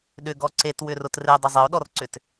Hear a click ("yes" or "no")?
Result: yes